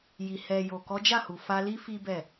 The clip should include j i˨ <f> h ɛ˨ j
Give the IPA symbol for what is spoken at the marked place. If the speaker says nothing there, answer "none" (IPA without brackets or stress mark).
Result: none